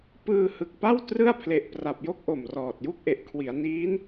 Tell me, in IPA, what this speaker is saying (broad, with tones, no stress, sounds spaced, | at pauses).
p ɯː˧ h ɯ˨˩ k̚ p a˥˩ w t r ɯ˥˩ a̯ pʰ l e˨˩ ʔ p r a˨˩ p̚ j o˥˩ k̚ ʔ o˨˩ m r ɔː˨˩ t̚ j u˥˩ k̚ ʔ e˨˩ ʔ kʰ w i˩˦ a̯ n iː˦˥ n